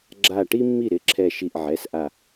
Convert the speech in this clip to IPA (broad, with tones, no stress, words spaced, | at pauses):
ɡ͡ǁa˧˩ʈi˥mːi˥˩ ɾɪ˩˧˩ǁʰɛ˧˩ ʃi˧˩ʔʕɛ˩˧˩sʔa˧˩